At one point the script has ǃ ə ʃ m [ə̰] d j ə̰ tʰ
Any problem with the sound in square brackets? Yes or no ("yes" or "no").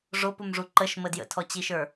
yes